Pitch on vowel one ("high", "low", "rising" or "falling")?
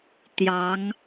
rising